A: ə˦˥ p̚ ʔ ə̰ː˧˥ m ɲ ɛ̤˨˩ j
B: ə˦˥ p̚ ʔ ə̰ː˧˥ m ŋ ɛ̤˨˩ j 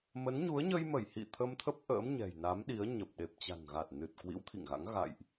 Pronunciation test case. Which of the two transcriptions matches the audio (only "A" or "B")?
A